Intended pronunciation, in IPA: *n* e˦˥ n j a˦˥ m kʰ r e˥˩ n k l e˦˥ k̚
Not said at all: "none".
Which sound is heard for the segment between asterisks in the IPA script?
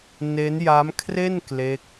n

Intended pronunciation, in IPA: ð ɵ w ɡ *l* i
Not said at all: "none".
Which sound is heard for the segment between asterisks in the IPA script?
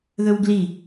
l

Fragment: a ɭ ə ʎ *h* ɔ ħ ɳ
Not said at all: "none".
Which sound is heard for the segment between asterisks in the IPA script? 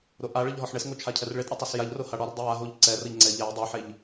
ɦ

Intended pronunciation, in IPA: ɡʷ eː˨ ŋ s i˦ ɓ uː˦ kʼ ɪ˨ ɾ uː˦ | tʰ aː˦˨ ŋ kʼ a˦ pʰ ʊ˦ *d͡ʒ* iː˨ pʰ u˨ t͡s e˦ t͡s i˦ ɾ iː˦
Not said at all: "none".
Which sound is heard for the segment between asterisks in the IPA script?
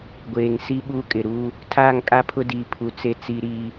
d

